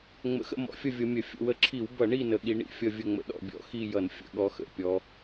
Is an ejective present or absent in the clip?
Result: absent